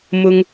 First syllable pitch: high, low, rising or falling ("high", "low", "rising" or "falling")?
high